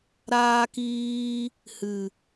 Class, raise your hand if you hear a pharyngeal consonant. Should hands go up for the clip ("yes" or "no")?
no